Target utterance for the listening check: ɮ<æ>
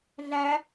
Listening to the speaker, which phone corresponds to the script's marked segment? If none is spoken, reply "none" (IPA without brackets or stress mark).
æ